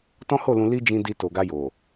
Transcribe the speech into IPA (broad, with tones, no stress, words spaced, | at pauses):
tɔ̃˦ho˦˨lũ˧ li˦d͡ʒĩ˧ di˧to˨ɡa˧jo˨